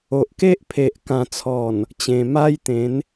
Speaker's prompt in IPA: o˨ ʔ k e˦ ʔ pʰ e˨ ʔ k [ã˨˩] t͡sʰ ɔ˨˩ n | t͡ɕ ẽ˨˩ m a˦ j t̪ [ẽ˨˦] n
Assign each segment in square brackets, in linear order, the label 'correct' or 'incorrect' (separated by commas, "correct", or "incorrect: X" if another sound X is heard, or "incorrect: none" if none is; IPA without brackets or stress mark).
correct, correct